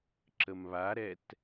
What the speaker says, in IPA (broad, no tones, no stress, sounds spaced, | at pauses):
ǁ ə m β a ɾ ɛ t